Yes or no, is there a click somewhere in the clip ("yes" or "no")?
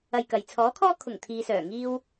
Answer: no